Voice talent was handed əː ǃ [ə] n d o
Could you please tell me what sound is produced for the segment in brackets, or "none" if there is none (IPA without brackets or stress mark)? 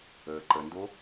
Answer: ə